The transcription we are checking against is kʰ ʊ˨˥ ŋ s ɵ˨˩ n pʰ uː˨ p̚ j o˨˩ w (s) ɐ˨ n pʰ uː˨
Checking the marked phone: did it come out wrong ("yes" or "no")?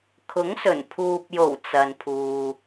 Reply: yes